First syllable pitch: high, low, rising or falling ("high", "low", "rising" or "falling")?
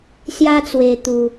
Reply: high